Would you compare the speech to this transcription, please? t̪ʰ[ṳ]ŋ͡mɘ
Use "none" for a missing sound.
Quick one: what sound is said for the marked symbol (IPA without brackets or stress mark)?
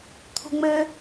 ṳ